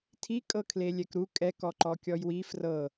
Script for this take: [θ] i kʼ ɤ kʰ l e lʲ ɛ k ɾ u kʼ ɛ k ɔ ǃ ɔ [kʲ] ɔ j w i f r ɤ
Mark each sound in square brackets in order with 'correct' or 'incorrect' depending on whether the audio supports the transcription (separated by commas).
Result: incorrect, correct